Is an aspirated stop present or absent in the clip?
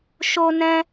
absent